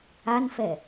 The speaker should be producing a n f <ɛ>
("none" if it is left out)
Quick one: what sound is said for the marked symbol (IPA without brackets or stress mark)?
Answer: ɛ